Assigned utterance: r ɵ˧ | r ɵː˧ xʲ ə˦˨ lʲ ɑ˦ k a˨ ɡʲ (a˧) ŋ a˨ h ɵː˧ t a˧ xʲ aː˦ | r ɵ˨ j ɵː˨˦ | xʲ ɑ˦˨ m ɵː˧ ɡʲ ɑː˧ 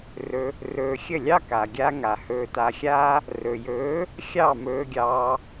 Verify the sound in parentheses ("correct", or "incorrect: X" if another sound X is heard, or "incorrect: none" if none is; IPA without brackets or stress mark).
correct